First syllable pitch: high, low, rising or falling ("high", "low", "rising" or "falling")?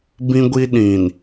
high